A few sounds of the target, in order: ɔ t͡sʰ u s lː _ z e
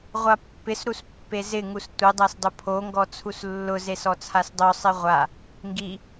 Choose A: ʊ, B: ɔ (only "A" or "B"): A